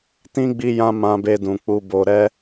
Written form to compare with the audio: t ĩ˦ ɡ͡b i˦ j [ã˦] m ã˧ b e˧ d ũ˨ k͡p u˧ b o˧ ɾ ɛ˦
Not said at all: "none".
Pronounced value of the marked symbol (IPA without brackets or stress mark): ã˦